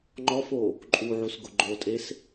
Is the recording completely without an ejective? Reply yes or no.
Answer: no